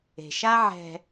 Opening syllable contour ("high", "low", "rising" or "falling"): low